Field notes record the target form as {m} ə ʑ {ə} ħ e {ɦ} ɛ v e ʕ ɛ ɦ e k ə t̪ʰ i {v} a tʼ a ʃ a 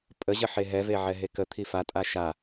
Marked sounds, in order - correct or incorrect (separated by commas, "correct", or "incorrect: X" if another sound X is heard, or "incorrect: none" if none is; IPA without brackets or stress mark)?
incorrect: pʼ, correct, correct, incorrect: f